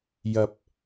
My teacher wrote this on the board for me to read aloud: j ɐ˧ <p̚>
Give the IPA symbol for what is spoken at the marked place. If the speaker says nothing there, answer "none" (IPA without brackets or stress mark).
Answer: p̚